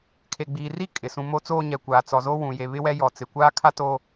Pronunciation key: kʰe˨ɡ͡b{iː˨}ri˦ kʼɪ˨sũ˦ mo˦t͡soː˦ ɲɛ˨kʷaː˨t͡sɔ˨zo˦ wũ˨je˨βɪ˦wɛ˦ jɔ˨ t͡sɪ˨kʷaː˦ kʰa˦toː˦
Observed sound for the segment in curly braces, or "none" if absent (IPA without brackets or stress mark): iː˨